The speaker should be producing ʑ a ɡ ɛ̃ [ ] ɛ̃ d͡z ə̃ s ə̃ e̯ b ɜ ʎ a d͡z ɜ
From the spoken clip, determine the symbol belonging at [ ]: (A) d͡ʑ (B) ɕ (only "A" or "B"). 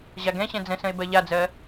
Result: B